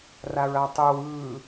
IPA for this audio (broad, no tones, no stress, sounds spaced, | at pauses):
r a ɹ a tˤ ɯ w ɯ